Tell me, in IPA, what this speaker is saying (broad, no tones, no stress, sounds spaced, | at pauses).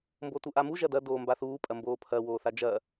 m b o t u ʔ a m u ʒ ɐ d ɐ d oː m b a θ uː pʼ ɐ m b oː pʰ ɐ w oː θ a d͡ʒ ɐ